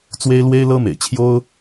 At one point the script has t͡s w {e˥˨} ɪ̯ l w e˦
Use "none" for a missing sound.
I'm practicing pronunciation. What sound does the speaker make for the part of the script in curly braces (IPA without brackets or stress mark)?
e˦